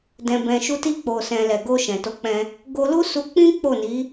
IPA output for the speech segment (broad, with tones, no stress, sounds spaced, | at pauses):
d ɛ̃˨ b ɛ̃˨ ʃ u˧ t i˧ k͡p o˨ s ɛ̃˨ l ɛ˨ ɡ o˧ ʃ ɛ̃˨ t o˨˦ k͡p ɛ̃˧ | ɡ o˧ l u˦ s u˧ k͡p ĩ˦ k͡p o˦˨ n i˨˦